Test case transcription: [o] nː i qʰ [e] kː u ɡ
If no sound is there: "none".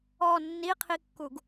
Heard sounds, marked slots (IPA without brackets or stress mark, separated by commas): ɔ, i